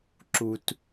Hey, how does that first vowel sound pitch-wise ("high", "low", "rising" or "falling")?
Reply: low